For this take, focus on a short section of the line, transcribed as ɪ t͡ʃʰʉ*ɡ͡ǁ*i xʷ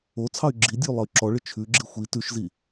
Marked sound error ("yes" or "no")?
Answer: no